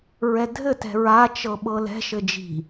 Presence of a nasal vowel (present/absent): absent